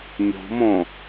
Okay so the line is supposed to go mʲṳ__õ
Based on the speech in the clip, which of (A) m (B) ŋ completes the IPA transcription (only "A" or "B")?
A